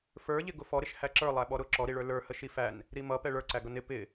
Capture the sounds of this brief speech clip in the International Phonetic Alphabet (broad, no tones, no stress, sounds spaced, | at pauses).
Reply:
f ə˞ ʎ ɪ ɡ ʊ f ɔ ɾ ɪ ʃ h æ ǁ ə˞ lˠ æ ɓ ɔ ɾ ʊ ǁ ɔ ɾ i ɭ ə˞ l ə˞ h ə ʃ i f æ n | ɾ i m ʌ p ɛ ɭ ə˞ ǀ æ ɡ ʌ n ɪ p ɪ